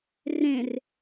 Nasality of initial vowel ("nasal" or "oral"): nasal